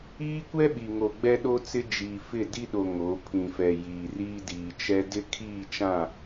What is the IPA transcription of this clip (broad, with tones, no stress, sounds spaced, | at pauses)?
iː˦ kʷ ɛ˦ ɓ i˨ ŋ o˨ ɡ͡b ɛ˦ ɗ o˦ t͡s ɪ˦ d͡ʒ iː˨ f ɪ˦˨ d i˦ ɗ o˨ ŋ o˨˦ pʰ ĩ˨ f ɛ˨ j iː˨ r iː˦ d iː˨ t͡ʃ ɛ˦ d ɪ˦ kʰ iː˦˨ t͡ʃ ã˦˨